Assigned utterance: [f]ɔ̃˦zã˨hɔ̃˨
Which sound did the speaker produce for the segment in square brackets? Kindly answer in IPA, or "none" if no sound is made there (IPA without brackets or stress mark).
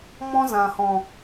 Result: m